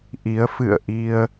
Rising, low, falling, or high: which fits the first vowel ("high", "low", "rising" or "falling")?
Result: rising